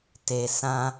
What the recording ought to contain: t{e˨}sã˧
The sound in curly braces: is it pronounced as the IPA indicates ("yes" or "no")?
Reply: yes